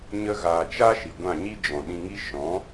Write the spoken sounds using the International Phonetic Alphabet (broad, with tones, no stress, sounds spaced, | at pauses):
ɲ ə˧ ɣ aː˨ t͡ʃ a˦ ʃ i˨ ɡʷ ã˦˨ ɲ i˦ d͡ʒ ɔ̃˨ ɗ ĩ˧ ŋ i˦ ʃ ɔ̃˨˦